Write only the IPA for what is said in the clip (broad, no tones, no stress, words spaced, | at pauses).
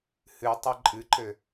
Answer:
hɨtˤɐ ǃʼɨǃɘ